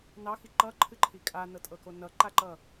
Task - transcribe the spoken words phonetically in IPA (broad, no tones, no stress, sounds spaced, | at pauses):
n ɑ x i ǃ ʌ ǃʰ ɨ ǃʰ i kʼ a n ɤ tʼ ɤ k o n ʌ ǃ a ǃ ʌ